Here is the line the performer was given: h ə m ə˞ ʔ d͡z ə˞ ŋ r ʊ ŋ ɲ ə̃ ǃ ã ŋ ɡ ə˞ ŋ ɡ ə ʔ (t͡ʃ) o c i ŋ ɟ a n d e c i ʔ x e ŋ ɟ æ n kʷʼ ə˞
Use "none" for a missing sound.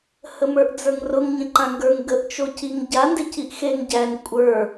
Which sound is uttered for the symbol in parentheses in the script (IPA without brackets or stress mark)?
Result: t͡ʃ